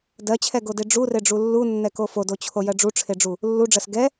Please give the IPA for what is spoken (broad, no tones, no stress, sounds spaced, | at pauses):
d ɜ t͡ɕʰ ɛ ɡ o d e ɖ͡ʐ u r e ɖ͡ʐ u lː u nː ɛ k o f o d o t͡ɕʰ o j ɜ ɖ͡ʐ u ʈ͡ʂʰ e ɖ͡ʐ u | lː u ɖ͡ʐ ɜ s ɡ ɛ